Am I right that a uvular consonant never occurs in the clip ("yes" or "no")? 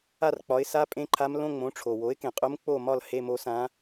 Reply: no